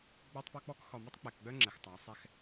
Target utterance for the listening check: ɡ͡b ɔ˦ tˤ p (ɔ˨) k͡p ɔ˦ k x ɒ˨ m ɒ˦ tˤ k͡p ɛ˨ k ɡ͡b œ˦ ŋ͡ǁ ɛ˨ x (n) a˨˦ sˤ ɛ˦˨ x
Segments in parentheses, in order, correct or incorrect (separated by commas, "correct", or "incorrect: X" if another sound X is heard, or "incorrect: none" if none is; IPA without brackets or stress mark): incorrect: ɔ˦, incorrect: tˤ